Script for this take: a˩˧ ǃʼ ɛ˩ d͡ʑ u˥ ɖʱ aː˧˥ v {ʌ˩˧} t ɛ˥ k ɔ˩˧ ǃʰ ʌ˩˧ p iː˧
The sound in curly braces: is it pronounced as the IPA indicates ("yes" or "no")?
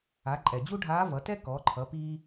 yes